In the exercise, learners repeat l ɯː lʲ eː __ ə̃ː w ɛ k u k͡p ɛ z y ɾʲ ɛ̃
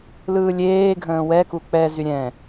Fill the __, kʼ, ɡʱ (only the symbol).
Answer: ɡʱ